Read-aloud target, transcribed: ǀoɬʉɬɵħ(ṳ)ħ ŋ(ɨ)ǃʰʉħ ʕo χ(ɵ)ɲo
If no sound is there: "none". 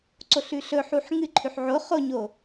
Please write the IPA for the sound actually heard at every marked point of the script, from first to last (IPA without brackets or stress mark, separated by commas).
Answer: u, ɨ, o